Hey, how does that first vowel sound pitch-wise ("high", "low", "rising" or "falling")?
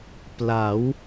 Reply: rising